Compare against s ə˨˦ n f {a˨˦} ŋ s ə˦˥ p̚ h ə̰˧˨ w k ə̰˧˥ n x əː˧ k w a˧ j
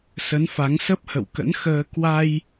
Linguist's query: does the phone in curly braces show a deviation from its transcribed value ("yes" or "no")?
no